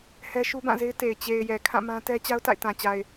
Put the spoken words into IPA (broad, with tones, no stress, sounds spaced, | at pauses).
h ɛ˦ ʃ u˦ b ã˦˨ z e˦ ɪ̯ t e˨ ɪ̯ t͡ɕ e˨ ɪ̯ j ɛ˨ kʰ ã˦˨ m ã˦ t ɛ˦ t͡ɕ a˦ ʊ̯ t a̰˦˨ ɪ̯ t ã˨ t͡ɕ a˨ ɪ̯